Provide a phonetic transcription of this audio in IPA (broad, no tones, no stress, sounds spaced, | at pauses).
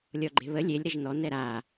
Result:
lʲ ɔ ɡ͡ǃ e̤ β ə lʲ e lʲ ɾ ə ʒ n ɔ n ɛ ɾ a